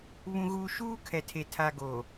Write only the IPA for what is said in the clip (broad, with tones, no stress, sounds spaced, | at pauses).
β ũ˨ ɣ uː˨ ʃ uː˦ kʰ ɛ˨ tʰ e˨ tʰ a˨ ɡ o˨